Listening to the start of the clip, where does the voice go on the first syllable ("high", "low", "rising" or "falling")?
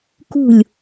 falling